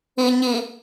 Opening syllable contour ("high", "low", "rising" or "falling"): low